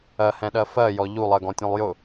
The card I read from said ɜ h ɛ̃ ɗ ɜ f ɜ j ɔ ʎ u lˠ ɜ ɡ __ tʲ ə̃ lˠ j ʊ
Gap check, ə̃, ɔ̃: ɔ̃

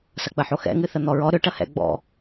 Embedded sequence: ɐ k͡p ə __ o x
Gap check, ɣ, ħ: ħ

